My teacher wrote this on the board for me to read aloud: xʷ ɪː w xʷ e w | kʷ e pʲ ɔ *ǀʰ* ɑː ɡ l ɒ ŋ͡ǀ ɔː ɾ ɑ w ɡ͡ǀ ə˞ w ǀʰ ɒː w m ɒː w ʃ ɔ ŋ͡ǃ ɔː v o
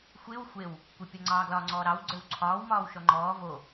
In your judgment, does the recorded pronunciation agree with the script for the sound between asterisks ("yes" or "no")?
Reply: no